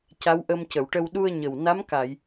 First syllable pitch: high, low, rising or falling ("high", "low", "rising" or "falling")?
rising